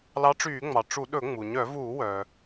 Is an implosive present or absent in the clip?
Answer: present